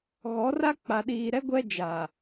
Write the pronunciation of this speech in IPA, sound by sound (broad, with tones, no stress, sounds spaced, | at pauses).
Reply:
ɣ ɔ˨˦ r a˦ k͡p a˨ ɗ iː˨ ɾ ɛ˦ ɡʷ ɛ˦ d͡ʒ a˨